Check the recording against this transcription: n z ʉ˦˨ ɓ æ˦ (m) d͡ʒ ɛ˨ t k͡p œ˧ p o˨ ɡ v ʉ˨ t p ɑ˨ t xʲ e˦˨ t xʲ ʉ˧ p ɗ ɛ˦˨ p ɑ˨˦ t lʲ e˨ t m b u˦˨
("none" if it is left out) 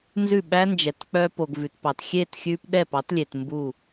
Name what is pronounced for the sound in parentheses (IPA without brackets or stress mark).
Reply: n